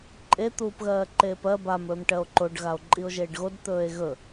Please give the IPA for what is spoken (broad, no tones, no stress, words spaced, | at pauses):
ǃʼe t̪uːpɣɜːǃeːpɜ bam ɵːmʈɜo̯ǃoɖ ɣao̯ǃʼio̯ʒeːɖɣod t̪ɵːe̯ɣɵ